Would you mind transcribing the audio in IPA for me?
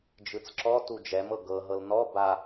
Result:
d͡ʒ ɯ t͡s ǁ ɔ t u d͡ʒ ɛ m ɤ ɡ ɤ ɦ ɤ l n ɔ b a

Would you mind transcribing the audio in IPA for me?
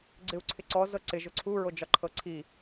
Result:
ɡ͡ǀ ɪ u̯ ǀʰ ɪ ǀ ɔ z ɤ ǀ ɪ ʒ ʊ ǀʰ u ɹ o d͡ʒ ɒ ǃʰ ɤ ǀʰ i

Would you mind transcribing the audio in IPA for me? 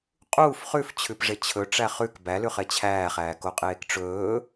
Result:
qʼ uː f χ ʉ f t͡ɕʰ ʉ p ʐ e t͡ɕʰ ɵ ʈ͡ʂ æ χ ʉ k b æ l ʉ χ e t͡ɕʰ æː χ æː k o qʼ eː k ʈ͡ʂ ɵː

